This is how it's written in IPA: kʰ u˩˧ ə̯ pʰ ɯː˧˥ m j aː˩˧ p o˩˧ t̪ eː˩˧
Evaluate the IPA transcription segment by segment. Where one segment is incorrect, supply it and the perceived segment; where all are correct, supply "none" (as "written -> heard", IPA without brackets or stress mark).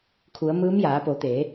pʰ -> m